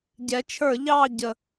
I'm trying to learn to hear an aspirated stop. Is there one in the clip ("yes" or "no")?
yes